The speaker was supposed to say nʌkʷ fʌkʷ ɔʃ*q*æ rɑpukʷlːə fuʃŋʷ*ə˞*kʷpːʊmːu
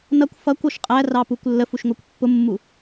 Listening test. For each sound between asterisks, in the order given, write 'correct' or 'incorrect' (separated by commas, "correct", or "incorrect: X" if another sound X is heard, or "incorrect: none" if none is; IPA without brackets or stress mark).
incorrect: qʼ, correct